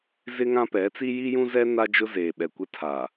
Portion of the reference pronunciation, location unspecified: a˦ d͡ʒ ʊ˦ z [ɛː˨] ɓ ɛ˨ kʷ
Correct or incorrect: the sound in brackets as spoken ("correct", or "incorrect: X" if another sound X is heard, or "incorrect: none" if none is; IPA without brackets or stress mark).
incorrect: eː˨